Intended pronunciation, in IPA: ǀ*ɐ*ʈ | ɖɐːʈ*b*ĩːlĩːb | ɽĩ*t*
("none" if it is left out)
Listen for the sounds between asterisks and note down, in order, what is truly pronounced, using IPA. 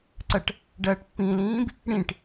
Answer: ɐ, pː, ʈ

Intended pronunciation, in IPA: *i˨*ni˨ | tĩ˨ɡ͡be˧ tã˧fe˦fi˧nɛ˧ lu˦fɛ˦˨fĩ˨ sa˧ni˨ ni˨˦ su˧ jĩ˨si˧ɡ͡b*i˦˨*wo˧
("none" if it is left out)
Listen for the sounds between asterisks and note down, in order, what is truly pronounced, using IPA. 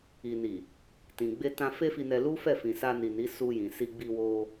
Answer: i˨, i˧

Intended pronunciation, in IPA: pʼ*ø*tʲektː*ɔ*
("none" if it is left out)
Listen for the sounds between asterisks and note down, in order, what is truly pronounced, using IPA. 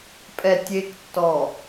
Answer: ɛ, ɔ

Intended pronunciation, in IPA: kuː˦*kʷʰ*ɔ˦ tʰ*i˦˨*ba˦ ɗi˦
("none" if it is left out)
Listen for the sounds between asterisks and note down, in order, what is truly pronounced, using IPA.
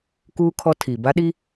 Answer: kʰ, i˨

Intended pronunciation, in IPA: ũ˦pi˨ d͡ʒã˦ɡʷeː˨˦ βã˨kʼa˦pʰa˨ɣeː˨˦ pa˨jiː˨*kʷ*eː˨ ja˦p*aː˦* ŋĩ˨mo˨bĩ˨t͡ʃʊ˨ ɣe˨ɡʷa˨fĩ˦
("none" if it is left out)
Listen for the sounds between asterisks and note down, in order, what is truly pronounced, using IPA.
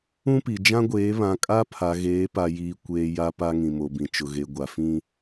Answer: kʷ, a˦

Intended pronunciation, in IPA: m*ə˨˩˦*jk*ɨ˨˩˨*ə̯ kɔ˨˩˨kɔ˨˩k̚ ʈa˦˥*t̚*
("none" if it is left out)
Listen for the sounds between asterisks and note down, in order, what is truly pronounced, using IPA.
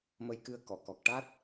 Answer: ə˧, ɨ˧, t̚

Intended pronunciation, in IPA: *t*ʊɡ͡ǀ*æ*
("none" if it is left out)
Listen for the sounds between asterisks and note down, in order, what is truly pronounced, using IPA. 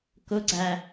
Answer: k, æ

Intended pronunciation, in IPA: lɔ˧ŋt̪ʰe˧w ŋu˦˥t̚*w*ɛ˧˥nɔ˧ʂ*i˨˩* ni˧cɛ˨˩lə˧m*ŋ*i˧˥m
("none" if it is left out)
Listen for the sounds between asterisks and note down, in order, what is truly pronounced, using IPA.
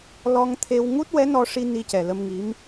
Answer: w, i˧, ŋ

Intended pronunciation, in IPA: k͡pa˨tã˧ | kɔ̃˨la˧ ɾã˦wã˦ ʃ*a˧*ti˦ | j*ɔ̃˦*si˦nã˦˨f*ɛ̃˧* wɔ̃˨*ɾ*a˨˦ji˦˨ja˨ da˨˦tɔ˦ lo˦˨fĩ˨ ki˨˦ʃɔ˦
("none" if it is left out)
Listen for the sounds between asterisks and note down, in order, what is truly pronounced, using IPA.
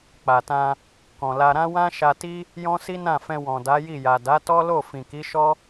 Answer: a˧, ɔ̃˦, ɛ̃˧, d

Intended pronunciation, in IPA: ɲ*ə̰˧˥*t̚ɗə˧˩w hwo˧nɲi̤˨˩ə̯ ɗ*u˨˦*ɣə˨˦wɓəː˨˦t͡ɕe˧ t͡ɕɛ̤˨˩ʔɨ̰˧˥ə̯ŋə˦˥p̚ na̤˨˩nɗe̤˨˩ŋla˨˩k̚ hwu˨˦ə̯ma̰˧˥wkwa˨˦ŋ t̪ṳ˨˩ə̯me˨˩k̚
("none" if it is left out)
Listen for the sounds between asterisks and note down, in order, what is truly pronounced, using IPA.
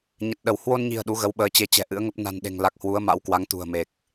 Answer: ə˨˩, u˨˦

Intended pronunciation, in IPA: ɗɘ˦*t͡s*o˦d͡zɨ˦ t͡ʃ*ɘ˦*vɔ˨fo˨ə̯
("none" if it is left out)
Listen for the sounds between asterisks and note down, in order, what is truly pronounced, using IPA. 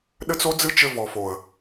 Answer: t͡s, ɘ˦

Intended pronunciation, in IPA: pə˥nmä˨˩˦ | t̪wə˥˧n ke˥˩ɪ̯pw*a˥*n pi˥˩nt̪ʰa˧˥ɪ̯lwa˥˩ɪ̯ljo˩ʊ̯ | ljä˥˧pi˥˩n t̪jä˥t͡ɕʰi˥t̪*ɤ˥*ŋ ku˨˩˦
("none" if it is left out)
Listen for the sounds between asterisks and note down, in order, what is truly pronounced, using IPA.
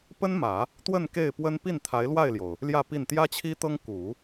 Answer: ə˥, ɤ˥

